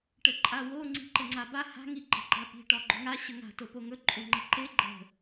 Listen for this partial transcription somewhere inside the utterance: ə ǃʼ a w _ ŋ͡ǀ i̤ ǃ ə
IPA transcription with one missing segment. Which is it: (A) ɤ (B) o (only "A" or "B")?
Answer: B